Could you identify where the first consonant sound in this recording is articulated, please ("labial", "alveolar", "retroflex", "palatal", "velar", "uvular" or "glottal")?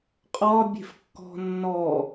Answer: uvular